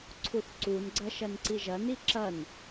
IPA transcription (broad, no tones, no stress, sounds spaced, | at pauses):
ǀʰ u θ ǀ u n ɡ͡ǀ ɐ ʃ ɐ n ǀ i ʒ ɐ n i ǁ ɐ n